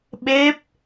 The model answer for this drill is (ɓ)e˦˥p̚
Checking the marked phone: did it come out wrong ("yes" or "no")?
no